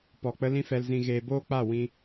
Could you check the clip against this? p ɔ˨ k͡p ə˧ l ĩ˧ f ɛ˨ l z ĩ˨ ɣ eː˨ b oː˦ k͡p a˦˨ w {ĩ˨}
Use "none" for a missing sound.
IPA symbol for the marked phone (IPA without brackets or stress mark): ĩ˧